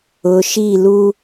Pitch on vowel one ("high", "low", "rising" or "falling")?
low